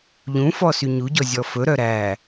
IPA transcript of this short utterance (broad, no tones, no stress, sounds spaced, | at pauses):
ʎ ũ f ɔ s y ɲ u ɟ ɔ zʲ ɔ f ɵ ɾ œ ɾ æ